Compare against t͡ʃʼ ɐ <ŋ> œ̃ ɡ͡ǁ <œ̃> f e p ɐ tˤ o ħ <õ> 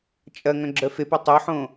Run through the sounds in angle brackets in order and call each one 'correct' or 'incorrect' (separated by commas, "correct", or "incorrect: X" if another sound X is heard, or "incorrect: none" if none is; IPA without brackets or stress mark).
correct, incorrect: œ, correct